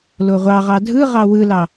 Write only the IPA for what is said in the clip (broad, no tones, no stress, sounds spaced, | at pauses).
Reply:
l o ʁʷ ɑ ʁ ɑ dʱ ɯ ʁ ɑ w ɯ l ɑ